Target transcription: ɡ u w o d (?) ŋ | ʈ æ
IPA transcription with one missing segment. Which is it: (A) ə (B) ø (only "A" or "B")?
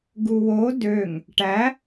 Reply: B